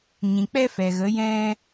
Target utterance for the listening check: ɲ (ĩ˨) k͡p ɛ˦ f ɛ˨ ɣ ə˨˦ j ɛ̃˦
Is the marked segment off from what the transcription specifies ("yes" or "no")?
no